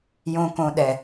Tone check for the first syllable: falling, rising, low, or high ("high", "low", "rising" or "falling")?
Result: low